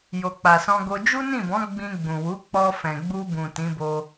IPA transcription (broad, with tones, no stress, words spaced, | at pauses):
jo˨k͡pa˨sɔ̃˧ɡo˧ d͡ʒu˦nĩ˦˨bɔ̃˨˦ ɡ͡bĩ˧ ɡ͡bũ˨wu˨˦ k͡pɔ˧fɛ̃˨ɡ͡bu˧bũ˨ tĩ˨˦bo˧